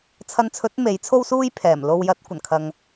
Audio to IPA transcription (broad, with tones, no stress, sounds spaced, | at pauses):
t͡sʰ ɐ˧ n t͡sʰ ɵ˨˥ t̚ m e˨˥ j t͡sʰ o˥ w s uː˥ j pʰ ɛː˨˩ m l o˧ w j ɐ˨˥ t̚ kʷ ɐ˨˩ n kʰ ɐ˨ ŋ